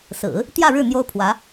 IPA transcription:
s ɹ̩˨˩˦ | t̪ j ä˥˧ ɻ ɻ̩˥˩ n̪ j o˥ ʊ̯ pʰ w ä˧˥

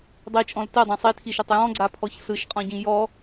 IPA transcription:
dˤ i t͡ʃʼ ɔ̃ l t ɜ dˤ ã sˤ i tʰ i ʃ ɜ tˤ j ɔ̃ ɡ͡ǀ a pʰ ɔ ç s ɯ ʃ qʼ ɔ̃ ɟ ĩ j ɔ

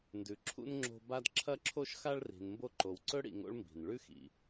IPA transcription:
n d ʉ˨ ǁʰ ṵ˥ n ŋ͡ǁ o̤˦ b a˦ d ǁʰ ɐ˦ ǁʰ o˦ ʃ x a˦ ɭ r i̤˨ n m b o˦ ǃ o˨ w ǀ ɵ˥ ɽ ḭ˨ ŋ o̰˦ ɭ m b i̤˩ n ɭ ʉ˥ x ḭ˩

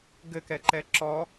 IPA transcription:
ɡ ɘ k ɛ ǃ ɛ ǁ ɔ

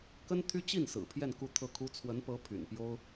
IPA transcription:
k ə˥ n t̪ʰ y˥ t͡ɕ i˥˩ n s ɹ̩˨˩ pʰ j ɛ˥˧ n k u˥˧ t̪ʰ ɤ˥˩ kʰ u˥ t͡sʰ w ə˧˥ n p ɤ˧˥ pʰ y̰˨˩ n p j o˥ ʊ̯

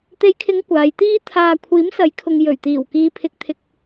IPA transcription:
t̪ e˨˧ j kʰ ɪ˨˧ ŋ kʷ aː˨˧ j t̪ iː˥ t̪ʰ aː˧ kʷʰ iː˨˥ m s ɐ˨˥ j kʰ ʊ˨ ŋ j ɵ˨˩ ɥ t̪ iː˨˩ w k iː˨ pʰ ɪ˨ k̚ t̪ʰ ɪ˨ k̚

